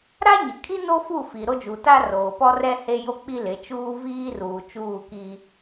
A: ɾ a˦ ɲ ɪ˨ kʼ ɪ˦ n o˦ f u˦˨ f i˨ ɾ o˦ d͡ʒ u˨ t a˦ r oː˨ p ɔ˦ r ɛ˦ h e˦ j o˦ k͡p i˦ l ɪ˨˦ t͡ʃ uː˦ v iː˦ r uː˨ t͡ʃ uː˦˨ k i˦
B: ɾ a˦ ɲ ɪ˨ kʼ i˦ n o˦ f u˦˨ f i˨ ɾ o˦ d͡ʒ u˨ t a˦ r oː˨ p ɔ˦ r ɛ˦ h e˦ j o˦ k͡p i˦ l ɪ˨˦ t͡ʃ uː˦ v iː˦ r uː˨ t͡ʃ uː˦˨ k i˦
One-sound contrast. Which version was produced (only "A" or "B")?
B